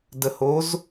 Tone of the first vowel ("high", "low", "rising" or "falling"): low